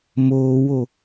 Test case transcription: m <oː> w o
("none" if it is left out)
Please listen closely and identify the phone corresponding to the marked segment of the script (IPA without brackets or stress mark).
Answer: oː